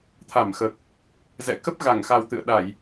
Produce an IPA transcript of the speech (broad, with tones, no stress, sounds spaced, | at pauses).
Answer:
t̪ʰ a˧˩ m x əː˨˩ k̚ | z ɛ̰˧˨ k ə˦˥ p̚ ɣ a˧˩ ŋ x a˨˩ w t̪ ɨ̰˧˨ ə̯ ɗ a˧˩˨ j